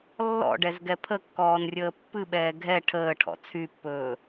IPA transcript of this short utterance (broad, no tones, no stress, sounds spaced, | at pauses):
lː ɔ̰ ɖ ɛ z ɡ ɛ pʰ ə kː ɔː n rʲ əː pː ɨ ɓ ɛː ɡʱ ɛ ʈʰ əː ʈʰ ɔ̰ t͡sʰ y pː ɵː